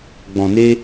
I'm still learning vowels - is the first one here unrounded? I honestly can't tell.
no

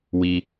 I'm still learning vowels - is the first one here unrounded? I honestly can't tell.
yes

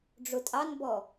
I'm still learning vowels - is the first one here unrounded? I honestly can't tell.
no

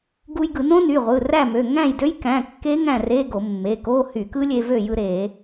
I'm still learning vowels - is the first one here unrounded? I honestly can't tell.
no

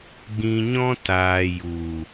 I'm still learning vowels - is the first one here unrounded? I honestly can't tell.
yes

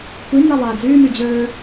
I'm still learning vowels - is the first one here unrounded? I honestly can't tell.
yes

